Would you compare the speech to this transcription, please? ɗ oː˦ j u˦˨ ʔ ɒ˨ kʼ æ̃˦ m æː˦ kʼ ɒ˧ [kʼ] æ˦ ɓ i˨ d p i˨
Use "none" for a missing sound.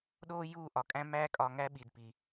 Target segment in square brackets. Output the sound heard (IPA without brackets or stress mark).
ŋ